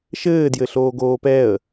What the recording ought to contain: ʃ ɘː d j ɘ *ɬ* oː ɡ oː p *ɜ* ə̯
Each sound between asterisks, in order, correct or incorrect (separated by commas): correct, incorrect